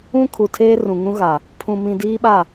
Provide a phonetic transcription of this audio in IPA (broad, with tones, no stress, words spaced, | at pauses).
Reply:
ũ˦kʰu˨ tʰeː˦rũ˨ŋũ˦ ɣa˨ | pʰũ˨mĩ˨ diː˦ɓa˦˨